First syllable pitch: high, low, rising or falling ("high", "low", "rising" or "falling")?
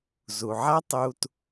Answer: low